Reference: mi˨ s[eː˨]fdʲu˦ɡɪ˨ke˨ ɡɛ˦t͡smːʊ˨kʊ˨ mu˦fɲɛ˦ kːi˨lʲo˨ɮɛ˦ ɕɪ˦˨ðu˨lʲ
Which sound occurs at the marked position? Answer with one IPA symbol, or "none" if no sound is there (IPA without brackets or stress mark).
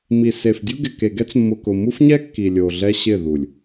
e˨